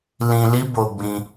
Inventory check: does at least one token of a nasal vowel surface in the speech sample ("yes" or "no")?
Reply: yes